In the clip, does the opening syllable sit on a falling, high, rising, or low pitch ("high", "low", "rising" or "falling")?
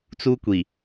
high